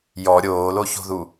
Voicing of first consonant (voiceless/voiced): voiced